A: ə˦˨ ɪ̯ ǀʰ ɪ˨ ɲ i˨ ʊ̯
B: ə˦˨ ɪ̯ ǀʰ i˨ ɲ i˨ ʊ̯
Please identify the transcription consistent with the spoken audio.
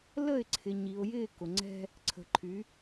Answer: A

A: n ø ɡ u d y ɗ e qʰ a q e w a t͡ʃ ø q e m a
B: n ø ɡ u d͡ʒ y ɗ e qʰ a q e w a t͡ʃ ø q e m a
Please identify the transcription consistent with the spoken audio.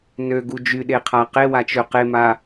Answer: B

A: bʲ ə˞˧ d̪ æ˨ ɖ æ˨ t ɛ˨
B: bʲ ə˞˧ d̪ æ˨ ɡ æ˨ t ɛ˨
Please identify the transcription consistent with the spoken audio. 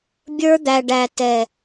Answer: A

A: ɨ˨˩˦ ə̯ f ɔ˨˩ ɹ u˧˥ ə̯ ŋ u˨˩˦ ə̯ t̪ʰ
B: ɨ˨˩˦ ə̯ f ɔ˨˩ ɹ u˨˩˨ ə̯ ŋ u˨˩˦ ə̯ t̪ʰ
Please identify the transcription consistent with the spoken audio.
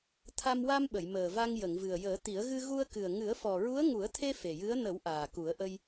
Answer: A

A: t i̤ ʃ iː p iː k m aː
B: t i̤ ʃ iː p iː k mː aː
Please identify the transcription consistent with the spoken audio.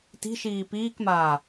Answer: A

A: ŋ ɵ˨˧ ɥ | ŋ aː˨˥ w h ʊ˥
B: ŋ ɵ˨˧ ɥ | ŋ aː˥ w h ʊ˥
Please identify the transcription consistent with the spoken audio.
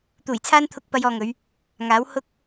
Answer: A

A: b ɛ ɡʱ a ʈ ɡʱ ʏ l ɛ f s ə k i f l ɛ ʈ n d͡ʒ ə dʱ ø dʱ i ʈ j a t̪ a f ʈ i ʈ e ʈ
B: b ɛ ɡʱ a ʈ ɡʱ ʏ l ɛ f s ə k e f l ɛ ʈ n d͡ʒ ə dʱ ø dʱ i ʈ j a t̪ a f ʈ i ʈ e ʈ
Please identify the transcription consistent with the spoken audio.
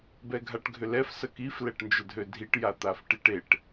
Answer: A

